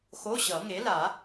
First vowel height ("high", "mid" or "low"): mid